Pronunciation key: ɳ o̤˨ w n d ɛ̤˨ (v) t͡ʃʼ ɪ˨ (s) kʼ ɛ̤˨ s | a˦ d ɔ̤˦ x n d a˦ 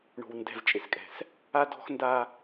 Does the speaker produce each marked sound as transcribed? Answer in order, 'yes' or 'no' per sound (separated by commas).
yes, yes